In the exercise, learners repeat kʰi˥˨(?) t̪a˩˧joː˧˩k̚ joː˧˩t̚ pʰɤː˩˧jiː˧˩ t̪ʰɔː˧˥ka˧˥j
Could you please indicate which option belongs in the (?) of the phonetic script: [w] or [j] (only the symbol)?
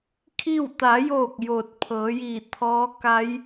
w